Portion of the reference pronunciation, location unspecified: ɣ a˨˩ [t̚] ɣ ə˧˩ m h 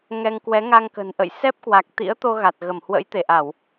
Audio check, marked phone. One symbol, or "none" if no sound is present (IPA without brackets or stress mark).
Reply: t̚